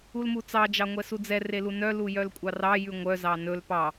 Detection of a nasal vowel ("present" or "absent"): absent